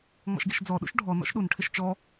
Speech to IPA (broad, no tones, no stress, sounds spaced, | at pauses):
ŋ͡m ɔ̰ ʃ ɡ i ʃ d͡z ɔ ɗ ṵ ʃ ɖʱ ɔ n ɔ̰ ʃ ɗ u n ʈʰ ɪ ʃ t͡ʃ ɔ